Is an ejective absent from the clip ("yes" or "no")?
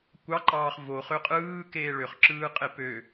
no